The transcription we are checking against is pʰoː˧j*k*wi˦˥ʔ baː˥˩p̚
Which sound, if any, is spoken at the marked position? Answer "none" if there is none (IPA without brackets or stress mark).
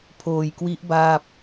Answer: k